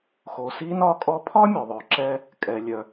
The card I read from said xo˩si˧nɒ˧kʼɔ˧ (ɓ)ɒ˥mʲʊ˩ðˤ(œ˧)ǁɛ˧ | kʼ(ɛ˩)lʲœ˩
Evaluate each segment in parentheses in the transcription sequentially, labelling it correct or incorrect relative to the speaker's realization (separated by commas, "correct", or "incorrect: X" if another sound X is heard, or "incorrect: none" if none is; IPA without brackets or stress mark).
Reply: incorrect: pʰ, incorrect: œ˩, correct